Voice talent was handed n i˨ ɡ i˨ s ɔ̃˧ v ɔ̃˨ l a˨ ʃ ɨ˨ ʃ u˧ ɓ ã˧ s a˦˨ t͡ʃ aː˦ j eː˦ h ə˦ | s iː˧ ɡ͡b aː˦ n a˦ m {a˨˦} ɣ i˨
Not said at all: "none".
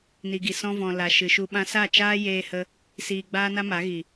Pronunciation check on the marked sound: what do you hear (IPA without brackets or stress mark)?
a˨˦